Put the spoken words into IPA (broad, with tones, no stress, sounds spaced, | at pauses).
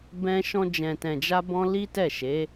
b ɛ̃˧ ʃ ɔ̃˧ d͡ʒ ɛ̃˨ t ɛ̃˨ d͡ʒ a˧ b ɔ̃˧ l i˦ t ɛ˦˨ ʃ e˨˦